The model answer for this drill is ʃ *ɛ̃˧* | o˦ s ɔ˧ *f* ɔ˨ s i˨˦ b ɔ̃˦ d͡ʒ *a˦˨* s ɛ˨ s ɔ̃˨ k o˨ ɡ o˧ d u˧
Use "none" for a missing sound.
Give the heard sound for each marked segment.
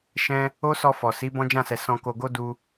ɛ̃˦, f, ã˦˨

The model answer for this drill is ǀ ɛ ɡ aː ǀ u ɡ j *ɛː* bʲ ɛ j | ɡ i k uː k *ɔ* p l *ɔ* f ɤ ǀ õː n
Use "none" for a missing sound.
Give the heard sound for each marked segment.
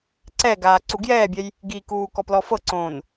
ɛː, ɔ, ɔ

